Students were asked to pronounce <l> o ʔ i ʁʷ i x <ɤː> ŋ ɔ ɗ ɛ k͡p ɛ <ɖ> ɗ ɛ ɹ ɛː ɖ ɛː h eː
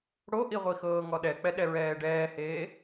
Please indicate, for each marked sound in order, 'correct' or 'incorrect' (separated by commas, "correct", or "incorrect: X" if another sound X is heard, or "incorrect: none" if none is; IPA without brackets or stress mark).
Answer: incorrect: ɽ, correct, incorrect: none